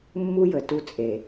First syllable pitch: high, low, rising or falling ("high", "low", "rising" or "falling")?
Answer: high